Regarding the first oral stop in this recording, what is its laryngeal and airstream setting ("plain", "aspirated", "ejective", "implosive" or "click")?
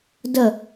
plain